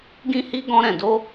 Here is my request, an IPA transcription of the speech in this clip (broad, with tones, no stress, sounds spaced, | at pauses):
ɡ ĩ˦ h i˦ ɡ ɔ̃˦ ɾ ɛ̃˧ d o˦